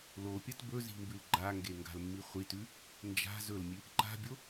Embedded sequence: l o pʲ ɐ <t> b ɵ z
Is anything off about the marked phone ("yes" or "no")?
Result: no